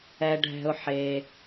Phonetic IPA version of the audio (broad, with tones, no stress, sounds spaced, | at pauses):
ɛ˩ ɖʱ ɛ̤˩ ʊ̯ ħ e˩